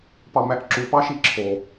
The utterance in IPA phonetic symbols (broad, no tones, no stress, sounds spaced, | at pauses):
p ɑ m æ ʔ ǁ u p ɑ ʃ i ǁʰ o